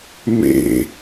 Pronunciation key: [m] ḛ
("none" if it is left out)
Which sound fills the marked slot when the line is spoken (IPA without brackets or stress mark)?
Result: m